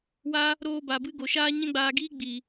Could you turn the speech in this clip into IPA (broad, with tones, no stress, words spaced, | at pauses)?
waː˦ | ɾoː˧ba˨bɨ˧ ɡo˨ʃaː˦ ɲɛ̃˦ɡ͡baː˧ɡiː˦ ɡ͡biː˨